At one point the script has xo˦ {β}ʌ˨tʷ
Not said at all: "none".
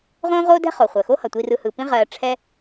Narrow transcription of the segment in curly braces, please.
h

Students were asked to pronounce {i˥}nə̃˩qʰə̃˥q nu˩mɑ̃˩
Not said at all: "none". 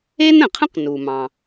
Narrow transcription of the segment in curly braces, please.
e˥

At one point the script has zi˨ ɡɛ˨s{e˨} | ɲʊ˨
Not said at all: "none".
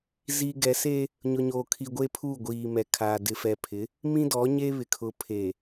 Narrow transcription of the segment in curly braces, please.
e˦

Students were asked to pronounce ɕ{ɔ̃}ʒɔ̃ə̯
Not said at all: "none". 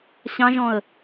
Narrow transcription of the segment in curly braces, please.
ɑ̃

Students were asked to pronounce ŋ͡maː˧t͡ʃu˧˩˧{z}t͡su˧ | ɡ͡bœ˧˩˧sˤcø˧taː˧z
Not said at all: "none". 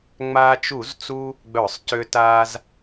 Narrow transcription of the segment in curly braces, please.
z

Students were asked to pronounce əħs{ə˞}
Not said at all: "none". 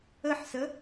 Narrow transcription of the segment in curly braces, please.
ə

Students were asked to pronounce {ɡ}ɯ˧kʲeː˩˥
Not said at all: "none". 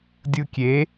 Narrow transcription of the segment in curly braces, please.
dʲ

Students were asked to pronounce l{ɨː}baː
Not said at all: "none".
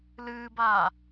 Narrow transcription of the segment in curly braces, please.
ɨː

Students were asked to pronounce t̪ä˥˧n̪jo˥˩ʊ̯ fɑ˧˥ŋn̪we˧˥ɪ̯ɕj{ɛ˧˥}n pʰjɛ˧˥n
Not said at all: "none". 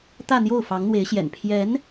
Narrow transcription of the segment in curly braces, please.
ɛ̰˨˩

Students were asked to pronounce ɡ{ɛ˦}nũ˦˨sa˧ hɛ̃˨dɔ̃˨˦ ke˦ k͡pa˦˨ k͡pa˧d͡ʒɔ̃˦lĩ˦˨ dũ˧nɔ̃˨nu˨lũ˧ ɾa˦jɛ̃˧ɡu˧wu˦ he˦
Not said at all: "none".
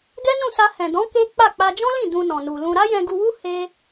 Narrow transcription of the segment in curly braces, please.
ɛ˦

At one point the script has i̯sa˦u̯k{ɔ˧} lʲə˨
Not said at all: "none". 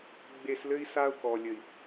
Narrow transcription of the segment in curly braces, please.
ɔ˨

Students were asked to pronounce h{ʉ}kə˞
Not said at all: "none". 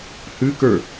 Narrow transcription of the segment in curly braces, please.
ʉ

